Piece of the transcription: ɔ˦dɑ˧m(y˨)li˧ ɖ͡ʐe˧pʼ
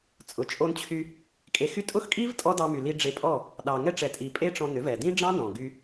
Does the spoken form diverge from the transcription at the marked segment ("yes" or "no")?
no